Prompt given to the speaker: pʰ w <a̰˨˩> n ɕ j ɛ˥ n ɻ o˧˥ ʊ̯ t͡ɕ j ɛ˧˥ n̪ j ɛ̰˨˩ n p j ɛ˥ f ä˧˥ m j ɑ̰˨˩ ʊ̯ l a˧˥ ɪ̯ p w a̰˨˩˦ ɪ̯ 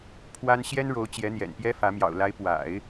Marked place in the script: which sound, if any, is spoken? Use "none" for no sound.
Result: a˥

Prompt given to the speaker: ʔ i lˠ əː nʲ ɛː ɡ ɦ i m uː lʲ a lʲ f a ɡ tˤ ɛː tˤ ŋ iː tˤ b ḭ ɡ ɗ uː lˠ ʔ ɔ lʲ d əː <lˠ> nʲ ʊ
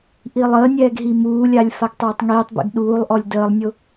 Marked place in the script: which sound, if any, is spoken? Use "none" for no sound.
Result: lˠ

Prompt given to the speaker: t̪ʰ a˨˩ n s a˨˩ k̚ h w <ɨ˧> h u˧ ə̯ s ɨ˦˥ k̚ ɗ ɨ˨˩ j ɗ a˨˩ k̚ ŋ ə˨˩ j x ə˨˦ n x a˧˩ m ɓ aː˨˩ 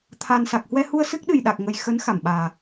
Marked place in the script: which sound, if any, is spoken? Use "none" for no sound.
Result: ɛ˧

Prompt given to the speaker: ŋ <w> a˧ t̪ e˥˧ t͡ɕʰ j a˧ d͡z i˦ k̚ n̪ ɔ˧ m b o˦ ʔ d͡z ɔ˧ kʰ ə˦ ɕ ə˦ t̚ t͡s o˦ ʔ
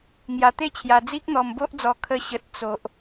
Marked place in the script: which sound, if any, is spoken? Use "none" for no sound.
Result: j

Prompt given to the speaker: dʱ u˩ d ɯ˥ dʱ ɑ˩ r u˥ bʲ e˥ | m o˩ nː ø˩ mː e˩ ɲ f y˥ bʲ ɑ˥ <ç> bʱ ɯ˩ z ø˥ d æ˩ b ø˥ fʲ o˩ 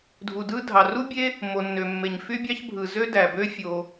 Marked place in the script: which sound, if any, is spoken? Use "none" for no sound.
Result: ç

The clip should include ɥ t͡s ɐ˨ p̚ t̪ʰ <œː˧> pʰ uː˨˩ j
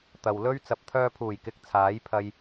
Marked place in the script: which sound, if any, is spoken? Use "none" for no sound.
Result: œː˧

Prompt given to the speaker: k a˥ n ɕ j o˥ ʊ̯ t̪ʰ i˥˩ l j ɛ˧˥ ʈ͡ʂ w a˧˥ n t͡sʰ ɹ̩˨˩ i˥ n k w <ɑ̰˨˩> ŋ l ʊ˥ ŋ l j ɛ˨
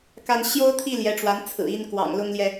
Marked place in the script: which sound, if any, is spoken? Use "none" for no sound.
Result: ɑ̰˨˩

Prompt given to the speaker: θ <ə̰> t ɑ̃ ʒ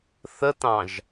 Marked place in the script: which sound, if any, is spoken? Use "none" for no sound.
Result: ə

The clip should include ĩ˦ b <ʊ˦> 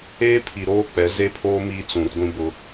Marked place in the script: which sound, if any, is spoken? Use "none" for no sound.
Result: ʊ˦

